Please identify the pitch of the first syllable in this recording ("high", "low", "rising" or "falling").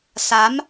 rising